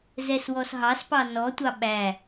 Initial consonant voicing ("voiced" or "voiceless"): voiced